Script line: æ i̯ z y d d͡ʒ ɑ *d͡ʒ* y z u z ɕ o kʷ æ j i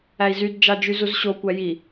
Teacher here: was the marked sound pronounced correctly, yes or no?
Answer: yes